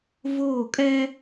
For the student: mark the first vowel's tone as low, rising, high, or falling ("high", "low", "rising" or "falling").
falling